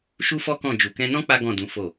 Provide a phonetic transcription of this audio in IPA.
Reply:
ʃu˦fɔ˦kɔ̃˦˨ d͡ʒu˨kɛ̃˧nɔ̃˦ k͡pa˦ɡɔ̃˦˨dũ˨˦ fo˦˨

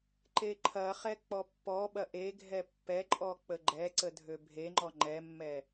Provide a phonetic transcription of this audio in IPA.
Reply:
ǃeǃʰɐχɛ k͡pɔpːɔɓɐ ʔeɡʱɛ pːɛǃʼɔ k͡pəɡ͡ǃɛǀə dʱøbʱeŋ͡ǃɔ ŋ͡ǃɛmːɛ

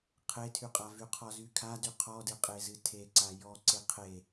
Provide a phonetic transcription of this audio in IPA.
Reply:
qʰetʰyqʼa vyqʰɔzykʰa dyqʰɔdɨqʼe zɨtʰeǀa jɔ ǀeqʰe

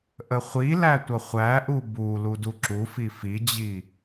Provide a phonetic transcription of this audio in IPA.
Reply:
ʔəχʷilæ tʷʌχʷæʔu bu luduǁufi fid͡ʑi

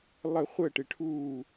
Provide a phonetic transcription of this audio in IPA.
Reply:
lˠə˨˩˦χʷəː˧˩ʈɪ˨˩˦ʈʰuː˧˩

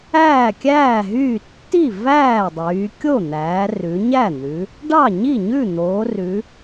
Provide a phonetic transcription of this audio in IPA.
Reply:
æː˥˩kʲæː˥˩ɦyː˥˩ tːi˥˩ væː˥˩dˤyː˩˧ kʲo˥˩ n̪æː˩˧ rʉ˩˧ɲæ˥˩n̪ʉ˩˧ | ɖɑ˥˩ɲi˥˩ɲʉ˥˩n̪oː˩˧ rʉ˩˧

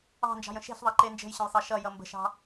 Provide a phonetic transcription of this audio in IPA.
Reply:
ɑ̤nd͡ʒɑ̤jə̃ ʃe̤ɬðˤɑǃe nd͡ʒə̤jɕə̃jsˤɑ ʃʌjʌ mbə̤ʃɑ̤

